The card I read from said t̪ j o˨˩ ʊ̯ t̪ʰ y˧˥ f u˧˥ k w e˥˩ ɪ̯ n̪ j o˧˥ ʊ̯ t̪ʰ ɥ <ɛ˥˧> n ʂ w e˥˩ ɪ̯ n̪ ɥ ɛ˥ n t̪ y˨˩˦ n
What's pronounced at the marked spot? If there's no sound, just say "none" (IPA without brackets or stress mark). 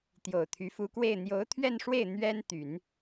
ɛ˥˧